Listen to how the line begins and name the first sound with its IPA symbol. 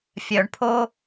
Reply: fʲ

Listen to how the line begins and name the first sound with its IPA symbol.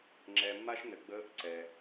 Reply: ŋ͡ǁ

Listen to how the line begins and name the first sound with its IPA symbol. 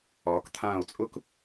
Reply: ɒː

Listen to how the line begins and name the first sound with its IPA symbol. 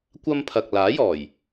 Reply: kʷ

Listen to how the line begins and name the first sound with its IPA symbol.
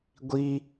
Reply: ɡʷ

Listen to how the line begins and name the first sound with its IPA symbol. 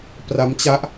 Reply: p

